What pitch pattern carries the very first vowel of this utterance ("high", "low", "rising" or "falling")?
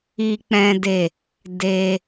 high